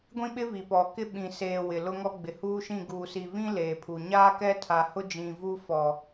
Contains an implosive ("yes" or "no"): yes